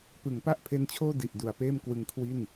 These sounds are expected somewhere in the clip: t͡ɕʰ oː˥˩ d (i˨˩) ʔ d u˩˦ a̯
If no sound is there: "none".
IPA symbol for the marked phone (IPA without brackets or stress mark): i˨˩